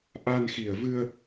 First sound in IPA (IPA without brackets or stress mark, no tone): ʔ